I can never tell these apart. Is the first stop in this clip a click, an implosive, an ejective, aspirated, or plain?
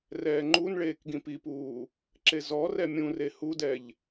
click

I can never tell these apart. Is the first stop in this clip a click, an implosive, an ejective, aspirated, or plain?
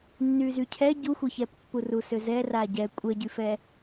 aspirated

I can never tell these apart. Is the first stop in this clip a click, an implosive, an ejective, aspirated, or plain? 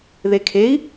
aspirated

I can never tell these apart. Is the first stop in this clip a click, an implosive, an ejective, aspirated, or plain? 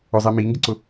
plain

